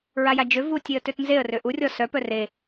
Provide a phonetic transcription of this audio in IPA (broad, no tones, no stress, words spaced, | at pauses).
ɹajad͡ʒø vutʲeə̯tøtnzeə̯ røʔurʲɔ sœpœ re